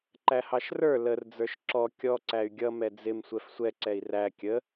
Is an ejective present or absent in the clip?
absent